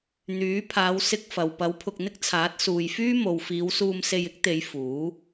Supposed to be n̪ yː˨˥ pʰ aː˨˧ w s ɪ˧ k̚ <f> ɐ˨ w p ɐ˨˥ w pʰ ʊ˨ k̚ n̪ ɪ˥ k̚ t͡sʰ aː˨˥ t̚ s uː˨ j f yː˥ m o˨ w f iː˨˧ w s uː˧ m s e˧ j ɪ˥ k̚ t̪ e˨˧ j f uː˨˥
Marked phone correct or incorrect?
correct